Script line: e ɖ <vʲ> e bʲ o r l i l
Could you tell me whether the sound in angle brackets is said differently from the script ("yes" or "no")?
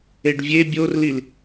no